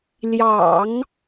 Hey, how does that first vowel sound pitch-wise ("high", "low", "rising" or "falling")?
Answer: low